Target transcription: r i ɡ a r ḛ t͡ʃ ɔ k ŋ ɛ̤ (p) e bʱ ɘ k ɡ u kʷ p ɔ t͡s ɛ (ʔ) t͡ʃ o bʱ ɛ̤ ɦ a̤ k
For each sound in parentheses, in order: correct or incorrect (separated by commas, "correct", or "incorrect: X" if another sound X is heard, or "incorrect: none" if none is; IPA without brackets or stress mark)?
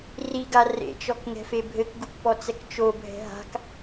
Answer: incorrect: f, incorrect: k